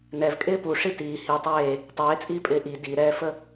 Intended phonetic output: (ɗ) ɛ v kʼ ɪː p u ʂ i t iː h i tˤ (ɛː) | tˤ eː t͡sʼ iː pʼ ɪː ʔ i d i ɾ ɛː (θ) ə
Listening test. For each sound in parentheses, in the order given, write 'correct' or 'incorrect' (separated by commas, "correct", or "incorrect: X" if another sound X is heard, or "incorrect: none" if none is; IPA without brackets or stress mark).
incorrect: n, incorrect: eː, incorrect: f